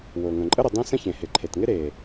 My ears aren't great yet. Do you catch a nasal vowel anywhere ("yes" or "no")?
yes